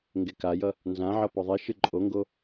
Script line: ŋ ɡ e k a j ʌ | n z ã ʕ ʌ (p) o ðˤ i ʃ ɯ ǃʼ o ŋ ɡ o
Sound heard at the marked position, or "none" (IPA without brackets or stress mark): p